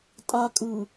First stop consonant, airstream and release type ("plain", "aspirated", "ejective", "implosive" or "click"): ejective